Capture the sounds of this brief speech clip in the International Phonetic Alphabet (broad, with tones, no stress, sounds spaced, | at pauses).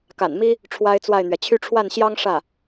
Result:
k a̰˨˩ n m i˥ | ʈ͡ʂʰ w a˥ ɪ̯ t͡s w a˥˩ ɪ̯ n̪ ɥ ɛ˩ t͡ɕʰ y˥˧ ʈ͡ʂʰ w a˥˩ n ɕ j ɑ˥ ŋ ʂ ä˥˩